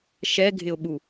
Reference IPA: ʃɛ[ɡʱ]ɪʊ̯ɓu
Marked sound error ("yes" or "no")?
no